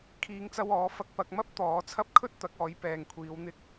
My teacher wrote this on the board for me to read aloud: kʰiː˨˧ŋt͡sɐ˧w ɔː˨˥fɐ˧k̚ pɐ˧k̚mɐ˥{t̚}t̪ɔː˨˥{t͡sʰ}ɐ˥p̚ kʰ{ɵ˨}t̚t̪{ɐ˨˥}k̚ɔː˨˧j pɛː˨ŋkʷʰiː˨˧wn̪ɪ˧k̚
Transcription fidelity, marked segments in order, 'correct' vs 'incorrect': incorrect: p̚, correct, incorrect: ɵ˥, correct

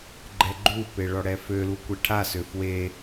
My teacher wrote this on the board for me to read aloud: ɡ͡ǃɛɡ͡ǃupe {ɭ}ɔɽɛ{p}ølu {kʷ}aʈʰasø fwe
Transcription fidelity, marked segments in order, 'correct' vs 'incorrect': correct, incorrect: f, correct

